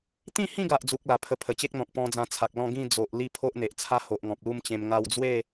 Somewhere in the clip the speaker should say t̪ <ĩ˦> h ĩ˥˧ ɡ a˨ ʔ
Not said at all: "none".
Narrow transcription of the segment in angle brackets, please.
ĩ˥˧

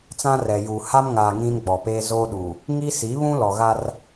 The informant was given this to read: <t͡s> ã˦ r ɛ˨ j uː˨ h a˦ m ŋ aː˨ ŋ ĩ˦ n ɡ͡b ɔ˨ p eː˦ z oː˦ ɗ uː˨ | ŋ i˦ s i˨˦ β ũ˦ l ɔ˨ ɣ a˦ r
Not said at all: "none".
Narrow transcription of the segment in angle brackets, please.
t͡s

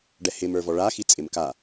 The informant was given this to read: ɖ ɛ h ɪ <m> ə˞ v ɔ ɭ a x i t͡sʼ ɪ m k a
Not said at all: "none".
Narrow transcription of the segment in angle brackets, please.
m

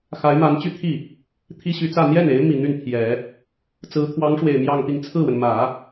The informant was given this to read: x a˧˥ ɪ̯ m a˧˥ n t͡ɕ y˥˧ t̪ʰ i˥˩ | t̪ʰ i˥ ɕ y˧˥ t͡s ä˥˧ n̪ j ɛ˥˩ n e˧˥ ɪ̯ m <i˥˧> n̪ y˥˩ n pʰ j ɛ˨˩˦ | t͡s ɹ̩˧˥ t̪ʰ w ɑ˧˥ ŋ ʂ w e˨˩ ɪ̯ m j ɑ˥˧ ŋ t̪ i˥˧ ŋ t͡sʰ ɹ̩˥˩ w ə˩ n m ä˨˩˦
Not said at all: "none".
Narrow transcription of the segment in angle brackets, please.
i˨˩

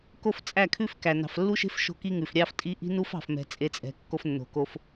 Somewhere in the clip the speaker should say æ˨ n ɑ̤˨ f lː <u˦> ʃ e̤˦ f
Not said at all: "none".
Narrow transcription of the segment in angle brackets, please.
u˦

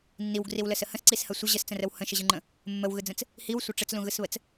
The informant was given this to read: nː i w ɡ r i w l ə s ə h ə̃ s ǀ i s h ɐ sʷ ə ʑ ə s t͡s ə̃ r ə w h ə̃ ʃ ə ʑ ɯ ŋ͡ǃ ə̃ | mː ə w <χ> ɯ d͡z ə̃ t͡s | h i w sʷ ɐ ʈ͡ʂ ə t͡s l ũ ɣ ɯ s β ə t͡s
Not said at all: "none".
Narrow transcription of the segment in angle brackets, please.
ɣ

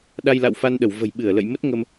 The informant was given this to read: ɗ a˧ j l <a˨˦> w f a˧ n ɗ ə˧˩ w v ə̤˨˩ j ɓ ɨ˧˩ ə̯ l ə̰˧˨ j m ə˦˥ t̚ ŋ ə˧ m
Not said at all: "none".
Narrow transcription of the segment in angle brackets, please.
a̰˧˨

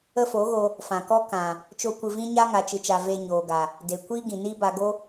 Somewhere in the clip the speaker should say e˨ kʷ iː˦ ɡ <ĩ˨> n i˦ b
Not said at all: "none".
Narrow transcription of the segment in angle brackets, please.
ĩ˨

